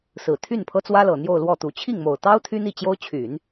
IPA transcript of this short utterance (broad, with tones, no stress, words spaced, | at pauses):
sɹ̩˨˩ t̪ʰy˥˩npʰɤ˥t͡swä˥lɤ˨˩ n̪jo˥˧ʊ̯lwɔ˥˩t̪u˧˥ t͡ɕʰi˥˩ŋmo˨˩ʊ̯t̪ɑ˥ʊ̯ t̪ʰy˥n̪i˥˩ t͡ɕjo˥ʊ̯ t͡ɕʰy˨˩˦n